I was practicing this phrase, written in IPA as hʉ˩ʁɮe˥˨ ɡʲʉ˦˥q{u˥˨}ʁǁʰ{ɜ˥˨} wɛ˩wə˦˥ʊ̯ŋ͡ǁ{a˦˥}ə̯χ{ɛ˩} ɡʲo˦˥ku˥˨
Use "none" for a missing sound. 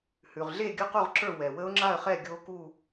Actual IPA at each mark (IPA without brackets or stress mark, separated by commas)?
u˥˨, ə˞˥˨, a˥˨, ɛ˥˨